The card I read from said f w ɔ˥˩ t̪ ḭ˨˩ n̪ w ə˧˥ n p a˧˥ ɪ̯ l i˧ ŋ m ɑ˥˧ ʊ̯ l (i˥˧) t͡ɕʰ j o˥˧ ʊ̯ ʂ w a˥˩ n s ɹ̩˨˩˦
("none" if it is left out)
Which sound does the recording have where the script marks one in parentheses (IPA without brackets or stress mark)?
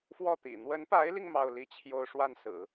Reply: i˥˧